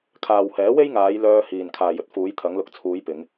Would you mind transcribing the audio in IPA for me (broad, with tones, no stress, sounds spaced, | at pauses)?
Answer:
kʰ aː˨ w h ɛː˨˥ w e˥ j ŋ aː˨˧ j l œː˧ h iː˨ n kʰ aː˨ j ɵ˨ t̚ f uː˨˧ j t̪ʰ ɐ˨˧ ŋ l ʊ˨˥ k̚ t͡sʰ uː˨˧ j p ɪ˨˧ ŋ